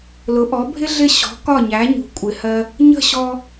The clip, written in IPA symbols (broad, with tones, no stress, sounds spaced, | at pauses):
l ʊ˩˥ ʔ ɔ˩˥ bʱ ɪ˥ ɮ ɪ˥˩ ɕ ɔ̤˩˥ k ɒ˥˩ ɲ æ˩˥ ɲ ṳ˩ kʷʼ ɪ˩ h ɜ˧ | ɲ ə̤˥˩ ɕ ɔ˧